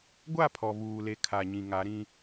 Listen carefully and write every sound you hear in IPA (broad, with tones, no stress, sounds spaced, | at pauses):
ɡʷ a˦˨ pʰ ɔ˨ v uː˨ l e˨ kʰ a˨ ɲ ĩ˨ ŋ a˨˦ ɾ ĩ˦